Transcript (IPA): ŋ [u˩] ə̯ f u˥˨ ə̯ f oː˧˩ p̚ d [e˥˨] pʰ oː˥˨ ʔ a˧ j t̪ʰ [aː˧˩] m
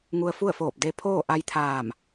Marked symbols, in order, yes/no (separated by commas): no, no, yes